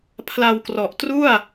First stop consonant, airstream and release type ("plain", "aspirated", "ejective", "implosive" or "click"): aspirated